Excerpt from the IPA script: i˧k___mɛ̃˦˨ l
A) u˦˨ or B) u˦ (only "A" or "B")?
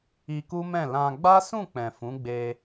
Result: B